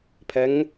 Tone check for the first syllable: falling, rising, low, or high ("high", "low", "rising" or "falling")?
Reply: rising